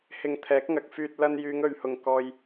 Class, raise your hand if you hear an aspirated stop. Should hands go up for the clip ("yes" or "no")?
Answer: yes